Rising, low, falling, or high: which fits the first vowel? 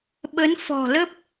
rising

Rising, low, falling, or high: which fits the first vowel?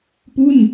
falling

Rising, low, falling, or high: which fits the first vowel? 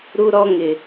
high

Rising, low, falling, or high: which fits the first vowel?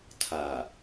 low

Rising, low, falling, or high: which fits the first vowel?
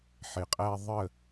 rising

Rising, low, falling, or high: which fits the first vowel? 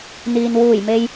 low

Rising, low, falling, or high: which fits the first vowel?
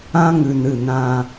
high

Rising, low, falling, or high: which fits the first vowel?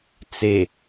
low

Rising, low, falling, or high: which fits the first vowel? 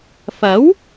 rising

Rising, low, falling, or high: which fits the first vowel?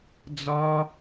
high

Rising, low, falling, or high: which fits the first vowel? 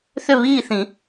falling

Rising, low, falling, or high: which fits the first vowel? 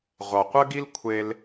low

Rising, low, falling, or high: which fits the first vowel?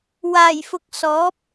low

